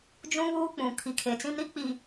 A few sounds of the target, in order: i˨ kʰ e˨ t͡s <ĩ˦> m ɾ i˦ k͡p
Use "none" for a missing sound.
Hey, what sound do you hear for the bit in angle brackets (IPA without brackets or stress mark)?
ĩ˦